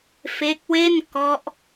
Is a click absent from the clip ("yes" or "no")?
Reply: yes